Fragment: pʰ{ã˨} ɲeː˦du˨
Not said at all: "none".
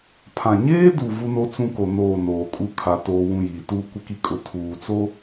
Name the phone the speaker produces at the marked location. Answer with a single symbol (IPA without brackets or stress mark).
ã˨